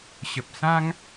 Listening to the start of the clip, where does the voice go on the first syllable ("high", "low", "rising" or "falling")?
low